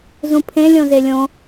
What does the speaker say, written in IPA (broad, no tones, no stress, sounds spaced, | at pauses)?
z ũ pʰ ẽ lʲ õ z e lʲ õ